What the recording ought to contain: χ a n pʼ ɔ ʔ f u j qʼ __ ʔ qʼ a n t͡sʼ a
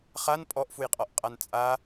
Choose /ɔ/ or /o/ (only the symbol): ɔ